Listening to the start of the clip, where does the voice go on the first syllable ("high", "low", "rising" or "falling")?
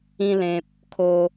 high